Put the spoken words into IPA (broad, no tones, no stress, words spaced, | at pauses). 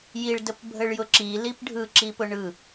jiɭdəp bʱəɭjʊǁi lipɖʱɯ ǁipʊɳɯ